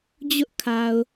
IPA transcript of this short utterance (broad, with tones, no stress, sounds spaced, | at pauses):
d͡ʑ ʊ˦ ʔ kʰ a˨ ʊ̯